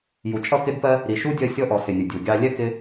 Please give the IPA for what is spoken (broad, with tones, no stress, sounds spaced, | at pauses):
j u˨ t͡ʃʼ ʌ˦˨ k ɪ˦ d p ɜ˦ | ɾ i˨ ʃ u˦ dʲ ɜ˧ sʲ ɔ˧ ʔ ɔ˨ s ɪ˨ nʲ ʊ˨ dʲ u˨ ɡʲ ɑ˧ lʲ ɛ˦ k ɪ˦